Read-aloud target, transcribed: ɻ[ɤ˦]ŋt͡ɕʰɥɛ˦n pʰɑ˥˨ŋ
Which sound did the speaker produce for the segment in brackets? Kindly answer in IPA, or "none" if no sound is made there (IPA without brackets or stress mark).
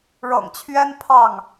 ɤ̰˨˩